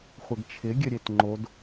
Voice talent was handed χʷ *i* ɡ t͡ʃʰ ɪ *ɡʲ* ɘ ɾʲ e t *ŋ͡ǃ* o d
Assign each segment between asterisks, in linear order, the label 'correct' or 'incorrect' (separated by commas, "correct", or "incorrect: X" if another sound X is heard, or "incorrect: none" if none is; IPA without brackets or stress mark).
incorrect: ɪ, correct, correct